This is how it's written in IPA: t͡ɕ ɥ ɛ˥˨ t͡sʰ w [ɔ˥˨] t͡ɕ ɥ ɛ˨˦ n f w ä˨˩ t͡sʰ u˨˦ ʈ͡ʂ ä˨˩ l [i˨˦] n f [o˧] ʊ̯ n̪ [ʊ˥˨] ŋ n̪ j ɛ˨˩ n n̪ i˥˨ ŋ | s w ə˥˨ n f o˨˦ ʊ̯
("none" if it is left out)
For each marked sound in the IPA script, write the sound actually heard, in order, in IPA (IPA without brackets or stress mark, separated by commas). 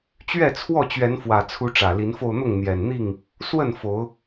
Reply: ɔ˥˨, i˨˦, o˧, ʊ˥˨